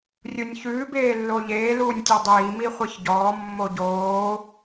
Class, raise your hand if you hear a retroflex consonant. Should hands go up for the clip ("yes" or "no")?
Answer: no